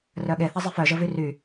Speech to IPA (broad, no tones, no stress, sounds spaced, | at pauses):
r œ ɠ e θ a zˤ e f œ ʒ ə v y r y